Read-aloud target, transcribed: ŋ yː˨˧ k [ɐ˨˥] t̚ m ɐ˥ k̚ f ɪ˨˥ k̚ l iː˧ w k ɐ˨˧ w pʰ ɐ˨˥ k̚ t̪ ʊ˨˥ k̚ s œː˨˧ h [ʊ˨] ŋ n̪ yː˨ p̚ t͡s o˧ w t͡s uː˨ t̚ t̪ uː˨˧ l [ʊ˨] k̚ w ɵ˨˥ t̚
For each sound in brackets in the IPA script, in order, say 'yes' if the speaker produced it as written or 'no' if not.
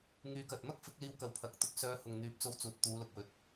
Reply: no, yes, yes

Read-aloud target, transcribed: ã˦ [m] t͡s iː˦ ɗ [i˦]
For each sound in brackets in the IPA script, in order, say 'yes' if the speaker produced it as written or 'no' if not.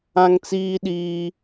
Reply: no, no

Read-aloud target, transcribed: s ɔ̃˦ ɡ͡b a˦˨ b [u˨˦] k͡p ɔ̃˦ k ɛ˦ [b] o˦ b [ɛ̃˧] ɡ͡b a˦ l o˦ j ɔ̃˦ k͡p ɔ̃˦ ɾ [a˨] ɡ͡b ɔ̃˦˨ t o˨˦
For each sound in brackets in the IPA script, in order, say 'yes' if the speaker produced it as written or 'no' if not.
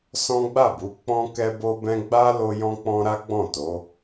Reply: yes, yes, no, no

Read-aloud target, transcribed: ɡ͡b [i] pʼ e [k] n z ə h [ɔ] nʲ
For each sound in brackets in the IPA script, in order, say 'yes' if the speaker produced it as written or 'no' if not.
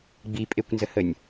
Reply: yes, no, no

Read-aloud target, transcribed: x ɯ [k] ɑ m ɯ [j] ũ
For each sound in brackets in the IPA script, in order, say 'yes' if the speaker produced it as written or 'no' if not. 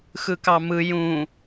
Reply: yes, yes

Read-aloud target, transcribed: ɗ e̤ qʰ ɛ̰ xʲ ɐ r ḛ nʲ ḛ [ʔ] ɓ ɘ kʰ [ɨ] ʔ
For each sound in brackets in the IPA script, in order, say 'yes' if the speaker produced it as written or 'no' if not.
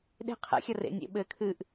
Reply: no, yes

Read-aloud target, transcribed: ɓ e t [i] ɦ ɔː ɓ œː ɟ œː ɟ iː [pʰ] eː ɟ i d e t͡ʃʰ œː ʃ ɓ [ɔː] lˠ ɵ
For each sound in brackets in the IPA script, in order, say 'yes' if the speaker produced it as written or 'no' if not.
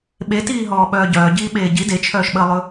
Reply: no, no, no

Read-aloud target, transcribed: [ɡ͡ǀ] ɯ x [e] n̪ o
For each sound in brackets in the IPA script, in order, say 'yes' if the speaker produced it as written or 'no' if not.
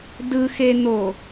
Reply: no, yes

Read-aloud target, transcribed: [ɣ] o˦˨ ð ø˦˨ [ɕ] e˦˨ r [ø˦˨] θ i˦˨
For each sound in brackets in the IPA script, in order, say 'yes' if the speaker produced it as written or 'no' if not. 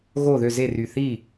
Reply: yes, no, no

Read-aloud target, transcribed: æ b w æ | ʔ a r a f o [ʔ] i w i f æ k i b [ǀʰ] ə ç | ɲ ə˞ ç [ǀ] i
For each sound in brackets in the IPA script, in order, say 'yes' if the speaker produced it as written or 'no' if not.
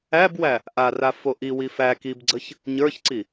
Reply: yes, no, yes

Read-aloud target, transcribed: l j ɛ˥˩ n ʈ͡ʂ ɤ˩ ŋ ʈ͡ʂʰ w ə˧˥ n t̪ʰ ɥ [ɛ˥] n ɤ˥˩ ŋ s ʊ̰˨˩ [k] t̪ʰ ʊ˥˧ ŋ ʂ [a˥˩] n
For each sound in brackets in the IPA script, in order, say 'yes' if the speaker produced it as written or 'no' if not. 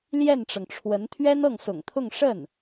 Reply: yes, no, no

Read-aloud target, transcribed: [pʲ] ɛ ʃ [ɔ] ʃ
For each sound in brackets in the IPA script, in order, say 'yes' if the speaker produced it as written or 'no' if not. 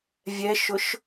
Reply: no, no

